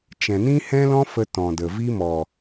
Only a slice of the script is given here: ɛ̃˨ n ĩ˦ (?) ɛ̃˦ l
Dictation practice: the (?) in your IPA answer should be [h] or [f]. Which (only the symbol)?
h